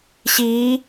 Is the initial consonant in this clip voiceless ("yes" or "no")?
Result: yes